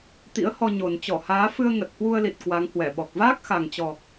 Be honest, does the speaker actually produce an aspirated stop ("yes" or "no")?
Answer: no